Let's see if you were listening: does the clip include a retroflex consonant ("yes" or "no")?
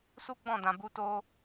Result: no